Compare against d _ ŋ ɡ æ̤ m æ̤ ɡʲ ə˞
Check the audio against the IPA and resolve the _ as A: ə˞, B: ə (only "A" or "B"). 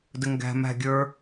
B